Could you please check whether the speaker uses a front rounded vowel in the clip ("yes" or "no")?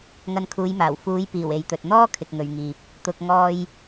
no